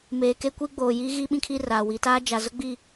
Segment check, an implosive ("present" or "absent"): present